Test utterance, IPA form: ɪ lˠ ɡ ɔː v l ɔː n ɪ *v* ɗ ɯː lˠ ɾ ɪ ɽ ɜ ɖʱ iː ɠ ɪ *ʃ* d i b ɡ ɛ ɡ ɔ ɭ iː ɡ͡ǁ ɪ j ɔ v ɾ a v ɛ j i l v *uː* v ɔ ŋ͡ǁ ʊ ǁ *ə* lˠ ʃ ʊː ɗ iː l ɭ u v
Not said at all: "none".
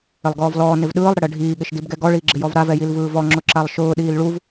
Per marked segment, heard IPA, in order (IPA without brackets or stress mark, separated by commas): v, ʃ, ɯː, a